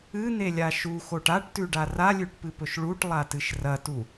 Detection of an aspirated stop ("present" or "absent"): absent